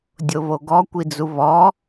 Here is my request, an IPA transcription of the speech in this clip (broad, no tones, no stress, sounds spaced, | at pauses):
dʲ o β o ɡ ɔ kʷ i d͡z u β ɔ